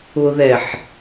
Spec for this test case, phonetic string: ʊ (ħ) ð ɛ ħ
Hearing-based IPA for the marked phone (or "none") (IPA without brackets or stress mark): none